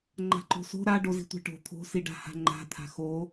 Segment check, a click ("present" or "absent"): present